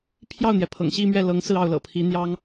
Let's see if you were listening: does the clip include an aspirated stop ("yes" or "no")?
yes